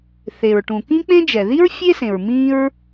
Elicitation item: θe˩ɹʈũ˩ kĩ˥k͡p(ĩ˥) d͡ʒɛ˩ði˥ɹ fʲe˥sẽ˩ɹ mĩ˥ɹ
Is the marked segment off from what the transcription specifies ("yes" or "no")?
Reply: yes